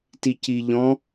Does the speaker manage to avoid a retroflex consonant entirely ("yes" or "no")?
yes